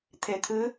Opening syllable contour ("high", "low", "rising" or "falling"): low